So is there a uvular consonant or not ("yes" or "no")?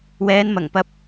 no